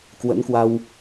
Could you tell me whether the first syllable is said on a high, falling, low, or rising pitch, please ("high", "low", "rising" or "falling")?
rising